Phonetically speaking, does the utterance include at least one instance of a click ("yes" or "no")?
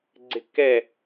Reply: yes